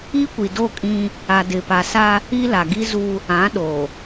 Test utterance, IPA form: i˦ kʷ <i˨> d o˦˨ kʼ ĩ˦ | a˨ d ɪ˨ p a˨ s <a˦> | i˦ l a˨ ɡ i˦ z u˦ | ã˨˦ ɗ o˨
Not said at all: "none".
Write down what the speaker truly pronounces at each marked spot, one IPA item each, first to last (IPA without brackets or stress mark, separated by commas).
i˨, a˦